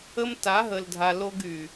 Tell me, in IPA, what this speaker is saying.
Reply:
ə˦m ta˨˦ɦə˨ldʱa˨ lo˦ɡy˨

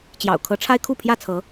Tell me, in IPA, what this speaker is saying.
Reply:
t͡ɕjɑ̰˨˩ʊ̯kʰɤ˨˦ʈ͡ʂʰa˦ɪ̯ kʰu˥˨pʰjä˥˨t͡sʰɤ˨˦

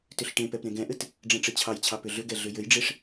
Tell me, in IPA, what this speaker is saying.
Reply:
tʏɬʈẽpɛp ɾẽɡɛ̃ʔɘt | ɖ͡ʐɛ̃ʈ͡ʂɘt͡ɕʰɑjt͡ɕʰɑ pʏɮʏɡɛ ɮʏjɘjɖ͡ʐeʂ

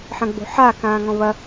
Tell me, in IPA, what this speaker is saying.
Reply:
ħɐ̃ɡ͡bo̤ħaː kãːŋɔ̃βɐ

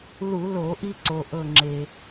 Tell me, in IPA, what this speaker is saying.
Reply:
lu˧˩˧lo˧˩˧ʔi˧ǀo˩ ʔɤ˧˩ŋ͡ǁe˩

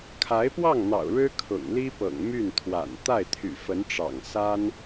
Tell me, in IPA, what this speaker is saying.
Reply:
kʰa˧˥ɪ̯pwɑ˥˩ŋn̪ɑ̰˨˩ʊ̯ ɻɻ̩˥kʰʊ̰˨˩ŋli˥pɤ̰˨˩ŋ my˥˩nt̪ʰwa̰˨˩n t̪a˥˩ɪ̯t̪ʰy̰˨˩ fə˧˥nʈ͡ʂɑ̰˨˩ŋ sa˥n

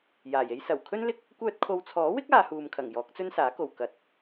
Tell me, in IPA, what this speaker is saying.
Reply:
jaː˨˩je˥j sɐ˨˩wkʰɵ˥nlɪ˥k̚ | kʷœː˧t̚kʰo˨˧wt͡sʰɔː˨˥wɪ˥k̚ aː˨˧huː˨mkʰɐ˨˩ŋ jɔː˨˥k̚t͡sɵ˥nsaː˨˥ko˨w kɐ˨˥t̚

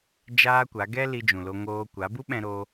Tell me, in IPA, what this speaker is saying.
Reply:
d͡ʒaː˦kʷa˨˦ ɡɛ˦ li˧d͡ʒũ˨lo˧ŋoː˧ kʷa˨˦ bu˦ɓɛ̃˧ɾoː˧

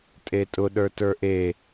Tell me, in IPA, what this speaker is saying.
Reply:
tʼetʼʊ ɗə˞tə˞ʔe

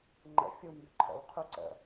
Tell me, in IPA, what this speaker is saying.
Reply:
ŋ͡ǃə̰ fʲumbʏ ǃʰə̰wqʰu ǀə̰

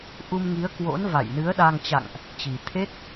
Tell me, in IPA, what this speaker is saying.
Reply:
ʔu˧mŋi˨˦ə̯ kwo̰˧˥nva̰˧˨jnɨ˨˦ə̯ ɗa˧ŋ t͡ɕa̰˧˨ŋʔ | t͡ɕi˨˩t̪ʰe˦˥t̚

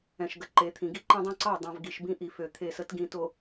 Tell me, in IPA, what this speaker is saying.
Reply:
ɛ̃˨ʃɡə˨ǃe˨˦t̪ʰĩ˨ ɡi˦ǃĩ˦dˤõ˦ ǀɑ˦˨dˤã˨v ɡi˨ʃbĩ˦ʔi˨ fø˨ t̪ʰe˦˨sə˦t ɡĩ˨ to˨

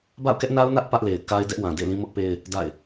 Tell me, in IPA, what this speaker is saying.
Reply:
ba̰˦˨ʊ̯kɛ˦ʔna˦ʊ̯nä˦ʔ pä˦ʔle˨ɪ̯ ka˦ɪ̯ dɛ˦ʔwã˨ dḛ˦˨lĩ˦mʊ˦ʔpe˦ɪ̯ | da̰˦˨ɪ̯

